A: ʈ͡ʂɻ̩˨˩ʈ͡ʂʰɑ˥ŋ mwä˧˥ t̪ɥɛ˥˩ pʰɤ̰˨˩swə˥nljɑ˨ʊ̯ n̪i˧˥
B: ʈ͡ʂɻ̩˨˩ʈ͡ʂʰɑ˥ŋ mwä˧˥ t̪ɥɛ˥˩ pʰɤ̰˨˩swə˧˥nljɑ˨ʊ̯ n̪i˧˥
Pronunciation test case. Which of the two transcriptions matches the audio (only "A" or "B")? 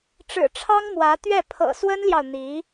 A